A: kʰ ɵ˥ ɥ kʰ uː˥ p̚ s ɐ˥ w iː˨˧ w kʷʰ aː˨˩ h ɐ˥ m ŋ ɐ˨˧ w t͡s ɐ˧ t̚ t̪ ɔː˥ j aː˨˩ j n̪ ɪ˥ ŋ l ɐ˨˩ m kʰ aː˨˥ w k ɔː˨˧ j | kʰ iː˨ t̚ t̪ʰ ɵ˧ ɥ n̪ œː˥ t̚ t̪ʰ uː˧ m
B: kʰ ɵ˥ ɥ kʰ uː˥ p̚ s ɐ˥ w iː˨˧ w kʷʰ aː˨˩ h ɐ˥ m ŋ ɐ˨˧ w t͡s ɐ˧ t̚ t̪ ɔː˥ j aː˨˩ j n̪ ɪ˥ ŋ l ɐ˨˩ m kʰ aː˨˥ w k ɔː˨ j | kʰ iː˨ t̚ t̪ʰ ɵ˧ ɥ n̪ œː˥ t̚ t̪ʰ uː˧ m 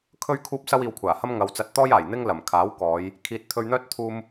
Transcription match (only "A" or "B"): A